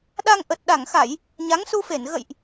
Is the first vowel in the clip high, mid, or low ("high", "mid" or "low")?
low